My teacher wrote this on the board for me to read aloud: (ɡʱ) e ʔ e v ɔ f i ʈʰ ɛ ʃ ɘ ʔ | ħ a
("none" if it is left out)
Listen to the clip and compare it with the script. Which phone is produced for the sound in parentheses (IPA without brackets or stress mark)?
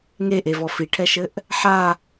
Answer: ŋ